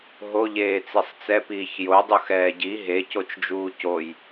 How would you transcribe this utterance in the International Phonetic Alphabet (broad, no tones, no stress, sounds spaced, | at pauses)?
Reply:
ɦ o ʎ eː t͡s i sˤ t͡s ɛ p iː ç j o dˤ u x ɛː ɟ i ɦ e c o t͡ʃ d͡ʒ uː c o j